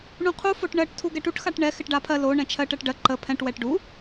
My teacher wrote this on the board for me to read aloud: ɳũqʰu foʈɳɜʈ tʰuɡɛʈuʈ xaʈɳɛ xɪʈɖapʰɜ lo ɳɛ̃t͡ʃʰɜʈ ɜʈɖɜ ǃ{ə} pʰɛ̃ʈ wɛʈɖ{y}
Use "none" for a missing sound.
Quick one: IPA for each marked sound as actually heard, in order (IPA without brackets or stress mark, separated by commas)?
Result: ə, u